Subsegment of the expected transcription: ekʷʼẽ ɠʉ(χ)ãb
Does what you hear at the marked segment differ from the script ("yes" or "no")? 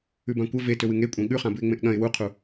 no